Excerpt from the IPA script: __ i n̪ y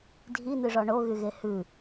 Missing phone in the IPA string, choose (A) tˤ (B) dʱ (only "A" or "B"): B